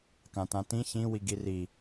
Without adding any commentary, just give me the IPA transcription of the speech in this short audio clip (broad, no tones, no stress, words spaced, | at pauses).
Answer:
kãtãtĩ çĩ wiɡiri